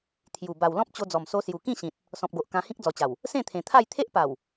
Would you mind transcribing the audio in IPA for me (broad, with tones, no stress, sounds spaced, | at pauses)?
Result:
t̪ʰ j u˨˩ b a˨˩ w l ɔ̃˦ p̚ t͡ɕ o˧ d͡z ɔ˨˩ m s o˧ s j u˨˩ k ĩ˥˧ ɕ ĩ˨ t̚ | s ɔ̃˨ p̚ ɡ o˨ ʔ k ã˧ h ĩ˦ k̚ d͡z ɔ˨˩ t͡ɕ a˨˩ w | s ẽ˥˧ t̪ʰ ẽ˨˩ t̪ʰ a˥˧ j t̪ʰ e˦ ʔ p a˨˩ w